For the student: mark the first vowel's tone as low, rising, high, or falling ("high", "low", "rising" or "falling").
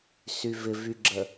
low